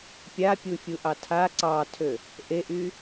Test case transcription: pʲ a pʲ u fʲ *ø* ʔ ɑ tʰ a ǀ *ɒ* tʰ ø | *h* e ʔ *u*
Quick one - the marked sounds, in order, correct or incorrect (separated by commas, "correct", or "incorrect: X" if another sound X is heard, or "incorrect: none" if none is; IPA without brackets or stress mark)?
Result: incorrect: u, incorrect: ɑ, incorrect: ʔ, incorrect: y